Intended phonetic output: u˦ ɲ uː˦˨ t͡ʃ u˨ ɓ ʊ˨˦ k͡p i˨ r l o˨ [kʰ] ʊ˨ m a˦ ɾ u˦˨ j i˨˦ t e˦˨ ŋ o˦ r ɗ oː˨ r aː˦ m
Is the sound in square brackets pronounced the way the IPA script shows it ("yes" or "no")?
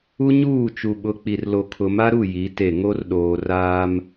yes